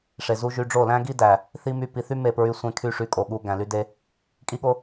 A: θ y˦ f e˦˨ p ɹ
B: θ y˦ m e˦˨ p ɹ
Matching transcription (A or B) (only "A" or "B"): B